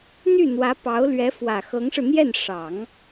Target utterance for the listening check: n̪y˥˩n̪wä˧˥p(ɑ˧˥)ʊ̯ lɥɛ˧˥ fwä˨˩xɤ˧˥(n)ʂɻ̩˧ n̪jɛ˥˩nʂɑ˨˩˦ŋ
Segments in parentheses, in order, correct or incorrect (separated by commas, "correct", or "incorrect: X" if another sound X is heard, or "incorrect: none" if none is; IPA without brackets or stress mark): correct, incorrect: ŋ